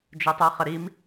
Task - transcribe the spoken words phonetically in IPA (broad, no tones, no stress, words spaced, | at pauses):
d͡ʒɵtˤə˞χəɾim